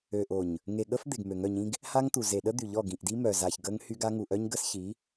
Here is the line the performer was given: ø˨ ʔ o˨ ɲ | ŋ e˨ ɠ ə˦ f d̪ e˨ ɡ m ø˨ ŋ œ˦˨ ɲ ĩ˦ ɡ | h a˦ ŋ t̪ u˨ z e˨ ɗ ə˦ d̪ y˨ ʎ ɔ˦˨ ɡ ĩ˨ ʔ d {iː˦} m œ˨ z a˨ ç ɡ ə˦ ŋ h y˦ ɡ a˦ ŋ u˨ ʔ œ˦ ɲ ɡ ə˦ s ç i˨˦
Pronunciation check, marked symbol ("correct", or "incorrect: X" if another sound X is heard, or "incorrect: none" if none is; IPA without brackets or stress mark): incorrect: i˦